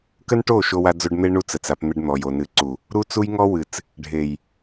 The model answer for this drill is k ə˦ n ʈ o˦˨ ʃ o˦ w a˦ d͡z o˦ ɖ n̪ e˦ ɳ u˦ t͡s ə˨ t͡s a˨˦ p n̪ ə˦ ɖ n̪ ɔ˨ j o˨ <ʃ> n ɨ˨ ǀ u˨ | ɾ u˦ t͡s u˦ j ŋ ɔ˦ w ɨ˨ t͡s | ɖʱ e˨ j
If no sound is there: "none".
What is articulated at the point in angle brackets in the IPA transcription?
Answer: none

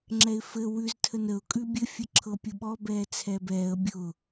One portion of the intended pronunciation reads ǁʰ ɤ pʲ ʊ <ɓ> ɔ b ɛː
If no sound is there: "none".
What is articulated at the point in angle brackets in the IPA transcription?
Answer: ɓ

